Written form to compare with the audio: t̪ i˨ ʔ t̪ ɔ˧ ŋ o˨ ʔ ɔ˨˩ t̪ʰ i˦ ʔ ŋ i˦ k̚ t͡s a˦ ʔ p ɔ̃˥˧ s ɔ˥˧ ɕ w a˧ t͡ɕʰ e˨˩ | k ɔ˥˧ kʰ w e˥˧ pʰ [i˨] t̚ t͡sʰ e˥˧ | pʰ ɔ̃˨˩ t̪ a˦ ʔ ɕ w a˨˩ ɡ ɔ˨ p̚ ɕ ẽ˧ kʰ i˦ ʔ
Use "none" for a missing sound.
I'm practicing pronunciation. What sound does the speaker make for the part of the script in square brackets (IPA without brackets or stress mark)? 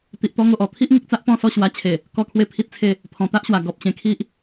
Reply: i˦